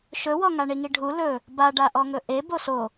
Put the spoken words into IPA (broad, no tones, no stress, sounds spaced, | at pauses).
ʃ ɵ w ɔ ŋ a ɳ i ŋ i ɖʱ u l ɵ | b a ɖ a ʔ ɔ ŋ ɵ ʔ e b o s o